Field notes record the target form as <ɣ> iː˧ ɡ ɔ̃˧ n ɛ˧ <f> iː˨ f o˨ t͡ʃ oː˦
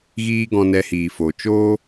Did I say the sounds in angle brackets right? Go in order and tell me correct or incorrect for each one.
correct, incorrect: h

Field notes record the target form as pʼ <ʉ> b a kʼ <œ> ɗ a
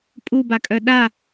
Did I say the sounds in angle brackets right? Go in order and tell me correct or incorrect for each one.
incorrect: u, correct

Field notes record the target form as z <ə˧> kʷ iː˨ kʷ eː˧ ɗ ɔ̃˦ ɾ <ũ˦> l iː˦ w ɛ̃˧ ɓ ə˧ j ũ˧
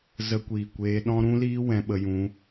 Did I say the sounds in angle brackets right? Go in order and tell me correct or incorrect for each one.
correct, correct

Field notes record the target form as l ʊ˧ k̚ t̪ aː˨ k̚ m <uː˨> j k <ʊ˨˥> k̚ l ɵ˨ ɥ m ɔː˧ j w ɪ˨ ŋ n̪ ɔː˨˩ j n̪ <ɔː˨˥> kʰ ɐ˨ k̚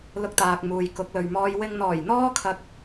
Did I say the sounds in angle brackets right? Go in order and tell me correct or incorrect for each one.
correct, correct, incorrect: ɔː˧

